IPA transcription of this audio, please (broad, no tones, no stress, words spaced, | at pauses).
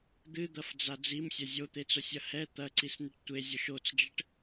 d̪ɨd̪ɐfd͡za d͡zimsʲɐ zʲot̪et͡sosʲɐ hɛ t̪ɐǀisniʈ tʷezʲoʃ ot͡sd͡ʒɘʈ